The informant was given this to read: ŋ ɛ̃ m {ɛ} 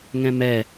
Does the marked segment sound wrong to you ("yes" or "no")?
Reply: no